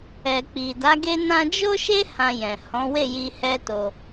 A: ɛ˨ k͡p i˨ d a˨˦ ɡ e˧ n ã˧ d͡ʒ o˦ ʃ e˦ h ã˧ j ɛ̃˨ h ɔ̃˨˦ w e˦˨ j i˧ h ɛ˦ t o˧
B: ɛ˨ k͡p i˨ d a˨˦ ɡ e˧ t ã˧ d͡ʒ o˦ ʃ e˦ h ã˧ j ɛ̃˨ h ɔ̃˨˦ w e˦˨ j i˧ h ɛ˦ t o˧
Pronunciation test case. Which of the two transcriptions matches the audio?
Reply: A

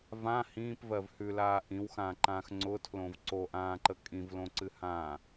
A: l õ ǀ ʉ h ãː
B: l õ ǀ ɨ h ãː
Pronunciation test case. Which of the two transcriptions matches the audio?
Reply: B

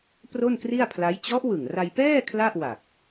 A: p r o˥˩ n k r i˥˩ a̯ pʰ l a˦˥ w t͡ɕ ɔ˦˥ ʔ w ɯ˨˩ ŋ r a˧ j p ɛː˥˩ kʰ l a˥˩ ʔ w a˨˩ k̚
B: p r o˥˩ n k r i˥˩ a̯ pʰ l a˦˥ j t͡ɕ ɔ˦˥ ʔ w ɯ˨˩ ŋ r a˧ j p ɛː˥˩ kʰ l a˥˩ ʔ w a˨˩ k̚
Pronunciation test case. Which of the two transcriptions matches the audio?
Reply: B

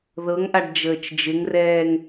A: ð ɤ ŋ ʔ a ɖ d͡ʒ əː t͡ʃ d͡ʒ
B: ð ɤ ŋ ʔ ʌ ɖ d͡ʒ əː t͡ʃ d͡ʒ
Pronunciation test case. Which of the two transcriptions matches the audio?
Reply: A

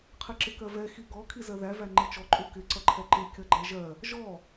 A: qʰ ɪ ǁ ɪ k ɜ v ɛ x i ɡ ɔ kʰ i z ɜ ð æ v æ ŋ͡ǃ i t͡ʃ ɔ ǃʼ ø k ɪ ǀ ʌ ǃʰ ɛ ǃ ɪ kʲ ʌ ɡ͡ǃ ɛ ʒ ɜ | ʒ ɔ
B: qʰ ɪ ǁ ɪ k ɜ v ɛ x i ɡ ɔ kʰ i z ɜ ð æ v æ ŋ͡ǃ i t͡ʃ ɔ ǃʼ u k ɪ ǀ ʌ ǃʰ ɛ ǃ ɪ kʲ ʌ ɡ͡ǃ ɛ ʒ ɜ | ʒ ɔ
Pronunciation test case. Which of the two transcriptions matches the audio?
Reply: B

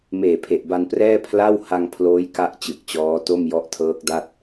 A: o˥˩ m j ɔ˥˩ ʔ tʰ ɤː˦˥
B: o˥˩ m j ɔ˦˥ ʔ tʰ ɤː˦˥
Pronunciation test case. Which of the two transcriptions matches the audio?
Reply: B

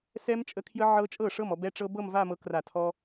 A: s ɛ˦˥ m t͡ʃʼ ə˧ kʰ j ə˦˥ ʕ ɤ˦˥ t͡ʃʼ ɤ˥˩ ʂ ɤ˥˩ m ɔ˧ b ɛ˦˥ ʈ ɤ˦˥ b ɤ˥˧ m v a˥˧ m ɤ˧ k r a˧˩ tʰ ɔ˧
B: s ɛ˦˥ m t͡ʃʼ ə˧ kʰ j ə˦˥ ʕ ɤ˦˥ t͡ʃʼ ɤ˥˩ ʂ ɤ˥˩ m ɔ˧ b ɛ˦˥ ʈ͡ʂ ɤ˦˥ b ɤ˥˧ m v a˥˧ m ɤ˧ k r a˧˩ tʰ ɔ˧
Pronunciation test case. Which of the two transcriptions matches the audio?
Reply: B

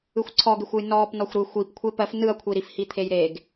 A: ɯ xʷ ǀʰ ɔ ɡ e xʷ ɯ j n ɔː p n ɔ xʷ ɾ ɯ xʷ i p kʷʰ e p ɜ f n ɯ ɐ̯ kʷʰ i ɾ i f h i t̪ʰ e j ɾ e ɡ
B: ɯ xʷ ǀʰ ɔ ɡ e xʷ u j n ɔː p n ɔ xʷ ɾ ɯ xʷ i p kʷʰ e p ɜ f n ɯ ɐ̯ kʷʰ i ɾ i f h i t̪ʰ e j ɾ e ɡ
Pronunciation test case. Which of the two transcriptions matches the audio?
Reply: A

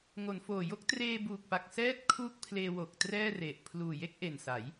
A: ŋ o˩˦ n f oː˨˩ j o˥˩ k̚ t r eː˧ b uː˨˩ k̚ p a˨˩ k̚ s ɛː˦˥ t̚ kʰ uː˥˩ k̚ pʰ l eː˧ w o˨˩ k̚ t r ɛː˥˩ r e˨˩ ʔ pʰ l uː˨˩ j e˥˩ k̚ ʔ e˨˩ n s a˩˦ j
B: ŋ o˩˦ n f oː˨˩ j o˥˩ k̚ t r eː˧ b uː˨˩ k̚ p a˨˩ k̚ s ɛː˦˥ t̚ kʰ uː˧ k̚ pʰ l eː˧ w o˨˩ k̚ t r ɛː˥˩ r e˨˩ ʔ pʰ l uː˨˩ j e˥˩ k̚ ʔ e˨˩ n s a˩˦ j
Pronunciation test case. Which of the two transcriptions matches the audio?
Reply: A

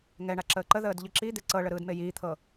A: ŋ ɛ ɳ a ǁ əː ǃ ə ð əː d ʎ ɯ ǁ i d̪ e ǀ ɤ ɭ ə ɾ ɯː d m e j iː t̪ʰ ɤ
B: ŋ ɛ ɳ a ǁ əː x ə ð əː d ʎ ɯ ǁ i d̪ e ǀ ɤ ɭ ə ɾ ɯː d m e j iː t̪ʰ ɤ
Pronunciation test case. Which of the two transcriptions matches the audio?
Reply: A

